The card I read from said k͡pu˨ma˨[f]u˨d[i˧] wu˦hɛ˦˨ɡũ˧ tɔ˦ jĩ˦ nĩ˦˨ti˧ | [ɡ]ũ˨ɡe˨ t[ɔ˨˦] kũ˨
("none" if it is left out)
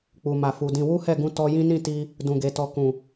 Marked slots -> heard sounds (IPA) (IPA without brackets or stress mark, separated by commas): f, ĩ˧, d, ɔ˨